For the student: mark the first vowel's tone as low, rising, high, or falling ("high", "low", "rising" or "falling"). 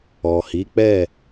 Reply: low